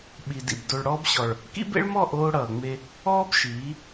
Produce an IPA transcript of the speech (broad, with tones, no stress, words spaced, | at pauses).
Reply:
ɓi˨ dḭ˨b do˨ɭɽɔː˦bɕɔ˨ɭ | kḭ˦bḛ˦ɭmɔ˦˨ ʔoː˦ɽʌː˨ŋ͡me˦ | ɔː˦b ʃiː˨˦